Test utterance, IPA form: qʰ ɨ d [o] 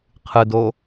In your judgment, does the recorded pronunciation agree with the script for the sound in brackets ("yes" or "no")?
yes